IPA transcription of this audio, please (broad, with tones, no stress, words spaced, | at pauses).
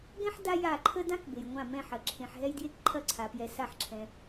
ɡɛ̃˦ħ da˦ ja˧˩ǃʰə˦ dã˦k be˩jŋʷã˧˩ mɛ̃˧˩ħɐ˩ ǁʰẽ˩ħ ɦɛ˦jdje˦k ǃʰɐ˧˩ǀʰa˩pjɛ˩ sa˧˩ħǁʰɛ̃˩